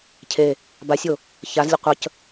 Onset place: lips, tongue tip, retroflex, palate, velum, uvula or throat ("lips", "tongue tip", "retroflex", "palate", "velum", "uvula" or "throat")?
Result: palate